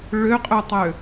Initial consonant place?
retroflex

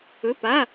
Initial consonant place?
labial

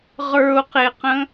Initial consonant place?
uvular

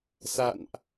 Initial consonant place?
alveolar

